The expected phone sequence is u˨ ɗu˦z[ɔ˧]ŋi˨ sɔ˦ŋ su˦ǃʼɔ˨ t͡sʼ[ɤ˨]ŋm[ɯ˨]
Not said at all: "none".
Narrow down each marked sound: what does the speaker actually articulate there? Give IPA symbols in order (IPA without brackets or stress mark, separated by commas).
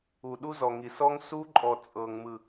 ɔ˨, ɤ˨, ɯ˨